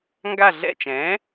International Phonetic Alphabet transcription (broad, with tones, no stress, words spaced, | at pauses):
ŋɡa˦˨ɮɛ̰˦˨t͡ʃɛ̃˩˥